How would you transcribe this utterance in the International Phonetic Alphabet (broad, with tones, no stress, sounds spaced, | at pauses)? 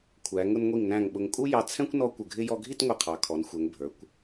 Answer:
kʷʰ æ˩˧ ŋ ʊ˧ n ŋʷ i˧˩ ŋ n æ̃˧˩ ŋ ɓ ʊ˧ ŋ kʼ u˥ j ɑ˧ t͡sʰ ɛ̃˥ kʷ n ɔ˥ kʷ ə˧˩ ɡʱ ɪ˥ j ɔ˧ ɡʱ i˥˧ t ŋʷ ɪ˧˩ qʰ ɑ˩˧ kʰ ɔ˩˧ n xʷ ɛ˩˧ ŋ bʱ ə˞˩˧ kʷ